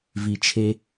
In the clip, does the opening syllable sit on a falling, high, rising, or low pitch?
low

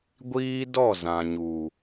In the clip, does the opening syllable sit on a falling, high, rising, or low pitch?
high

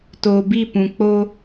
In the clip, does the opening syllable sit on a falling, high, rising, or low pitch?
low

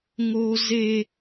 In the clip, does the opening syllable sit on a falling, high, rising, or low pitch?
high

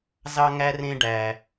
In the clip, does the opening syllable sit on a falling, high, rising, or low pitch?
high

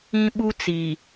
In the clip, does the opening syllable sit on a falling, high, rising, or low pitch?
high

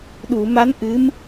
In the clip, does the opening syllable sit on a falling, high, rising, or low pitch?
low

